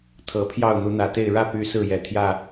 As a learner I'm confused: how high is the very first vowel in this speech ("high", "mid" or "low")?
mid